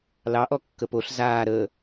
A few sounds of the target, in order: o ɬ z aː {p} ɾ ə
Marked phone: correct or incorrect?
incorrect